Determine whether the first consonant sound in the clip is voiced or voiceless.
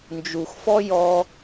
voiced